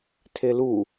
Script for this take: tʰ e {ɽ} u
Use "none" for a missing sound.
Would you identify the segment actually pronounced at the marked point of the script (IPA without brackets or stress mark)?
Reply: l